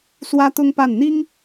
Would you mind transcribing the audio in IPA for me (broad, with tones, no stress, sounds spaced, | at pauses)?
s w ä˥ t̪ ʊ˥ ŋ p a˥˩ n n̪ i˥ ŋ